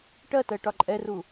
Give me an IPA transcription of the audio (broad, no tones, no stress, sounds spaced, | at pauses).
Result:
ʈ ɜ t ɜ ʈ ɒ ǃʼ ɛ r u